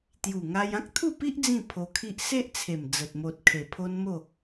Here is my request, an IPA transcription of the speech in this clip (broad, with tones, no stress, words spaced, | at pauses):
t̪ju˨˩ŋa˧j ã˦k̚t̪ʰu˥˧pi˦ʔ d͡zĩ˥˧pʰo˧kʰi˦ʔ se˦ʔt͡sʰe˨˩m d͡zə˨t̚mo˨t̚kʰe˨˩ pʰo˦nmo˥˧